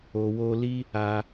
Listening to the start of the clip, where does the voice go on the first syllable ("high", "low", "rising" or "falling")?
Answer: low